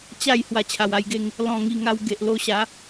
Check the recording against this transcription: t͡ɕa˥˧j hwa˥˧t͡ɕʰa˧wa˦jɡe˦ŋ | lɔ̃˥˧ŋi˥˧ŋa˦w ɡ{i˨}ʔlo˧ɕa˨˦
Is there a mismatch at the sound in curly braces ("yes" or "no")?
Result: yes